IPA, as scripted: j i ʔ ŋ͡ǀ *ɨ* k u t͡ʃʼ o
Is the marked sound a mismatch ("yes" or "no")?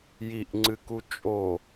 no